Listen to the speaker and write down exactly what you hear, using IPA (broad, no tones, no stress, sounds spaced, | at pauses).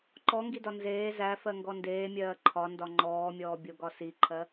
ǃ ɔ ŋ ɡ i d ɒ n z eː z æ f ɜ ŋ ɡ ɔ n d eː mʲ ɜː ǃʰ ɒ n d ɒ ŋ͡ǃ ɔː mʲ ɔː bʲ o ɡ ɒ s i ǃʰ ɜ